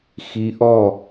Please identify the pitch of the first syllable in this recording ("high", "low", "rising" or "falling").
rising